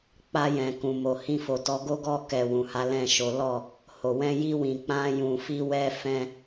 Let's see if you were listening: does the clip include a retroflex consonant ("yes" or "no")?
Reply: no